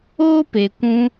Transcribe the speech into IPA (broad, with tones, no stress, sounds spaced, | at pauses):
oː˦ p e˨ kʷ ũ˧